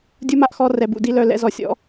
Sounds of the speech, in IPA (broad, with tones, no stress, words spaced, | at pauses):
dʲu˦ma˧ʔxɔ˦ rɛ˧bṵ˨di˦lœ˦˨ lɛ̰˧zɔ˨sʲɔ̰˨˦